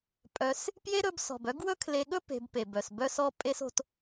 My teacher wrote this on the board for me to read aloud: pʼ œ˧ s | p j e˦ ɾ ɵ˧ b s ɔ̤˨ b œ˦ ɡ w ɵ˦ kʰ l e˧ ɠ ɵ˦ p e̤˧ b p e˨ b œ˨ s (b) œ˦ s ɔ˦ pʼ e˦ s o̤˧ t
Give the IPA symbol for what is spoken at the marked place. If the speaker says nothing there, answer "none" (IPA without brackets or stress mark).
b